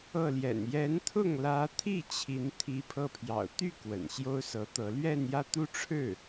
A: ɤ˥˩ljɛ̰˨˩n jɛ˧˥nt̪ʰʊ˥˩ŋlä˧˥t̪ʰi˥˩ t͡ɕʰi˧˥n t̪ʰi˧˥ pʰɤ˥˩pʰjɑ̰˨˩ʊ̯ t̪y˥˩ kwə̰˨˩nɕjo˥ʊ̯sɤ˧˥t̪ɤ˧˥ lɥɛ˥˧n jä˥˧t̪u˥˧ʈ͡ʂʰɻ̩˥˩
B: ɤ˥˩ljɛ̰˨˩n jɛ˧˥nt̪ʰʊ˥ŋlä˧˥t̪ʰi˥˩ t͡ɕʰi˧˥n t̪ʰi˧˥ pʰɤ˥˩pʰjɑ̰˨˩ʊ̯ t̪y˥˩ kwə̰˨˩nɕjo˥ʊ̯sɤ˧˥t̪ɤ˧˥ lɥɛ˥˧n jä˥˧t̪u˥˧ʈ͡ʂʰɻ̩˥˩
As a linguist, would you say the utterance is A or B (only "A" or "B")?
A